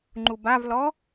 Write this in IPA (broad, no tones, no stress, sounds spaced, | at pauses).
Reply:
ŋ͡ǃ u b a v l ɔ